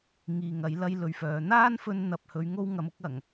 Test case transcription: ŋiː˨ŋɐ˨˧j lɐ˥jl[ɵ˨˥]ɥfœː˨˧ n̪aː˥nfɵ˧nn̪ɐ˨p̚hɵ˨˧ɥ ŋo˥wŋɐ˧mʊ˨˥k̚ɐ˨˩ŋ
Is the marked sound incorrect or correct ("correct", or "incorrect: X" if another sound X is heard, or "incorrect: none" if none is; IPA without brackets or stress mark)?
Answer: incorrect: ɵ˧